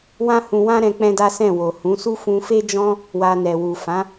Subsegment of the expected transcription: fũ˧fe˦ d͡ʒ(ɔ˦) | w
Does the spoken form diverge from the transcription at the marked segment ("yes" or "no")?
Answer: yes